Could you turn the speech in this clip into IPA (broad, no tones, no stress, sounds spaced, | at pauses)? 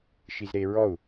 ʃ i z ɾ e ɹ ɔ u̯